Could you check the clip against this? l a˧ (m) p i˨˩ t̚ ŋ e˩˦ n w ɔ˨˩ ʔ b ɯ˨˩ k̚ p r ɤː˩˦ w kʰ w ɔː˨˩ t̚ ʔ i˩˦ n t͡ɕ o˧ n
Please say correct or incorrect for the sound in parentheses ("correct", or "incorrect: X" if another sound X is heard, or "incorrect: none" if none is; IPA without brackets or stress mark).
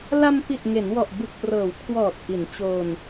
correct